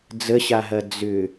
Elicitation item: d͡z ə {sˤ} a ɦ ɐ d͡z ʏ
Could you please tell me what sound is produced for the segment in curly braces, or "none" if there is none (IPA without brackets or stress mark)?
ɕ